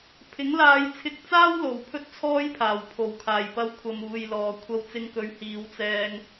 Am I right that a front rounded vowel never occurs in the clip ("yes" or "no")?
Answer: yes